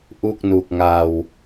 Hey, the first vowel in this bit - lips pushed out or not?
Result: yes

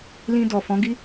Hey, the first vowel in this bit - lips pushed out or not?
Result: no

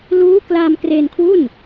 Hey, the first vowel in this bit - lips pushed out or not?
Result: yes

